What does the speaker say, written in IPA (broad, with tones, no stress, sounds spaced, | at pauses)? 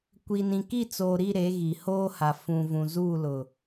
kʷ i˨ n ĩ˨ k i˦˨ t͡s oː˨ ɾ i˦˨ ɾ e˨˦ ɣ i˨ h oː˦ h a˨ f ũ˨ v ũ˨ z uː˦˨ l ʊ˨